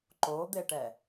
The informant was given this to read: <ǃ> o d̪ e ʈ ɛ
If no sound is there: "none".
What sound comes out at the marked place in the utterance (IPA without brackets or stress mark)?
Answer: ǃ